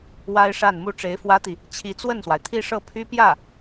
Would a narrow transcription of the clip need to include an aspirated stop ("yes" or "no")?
yes